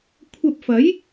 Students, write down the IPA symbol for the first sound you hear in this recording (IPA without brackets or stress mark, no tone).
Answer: kʷʰ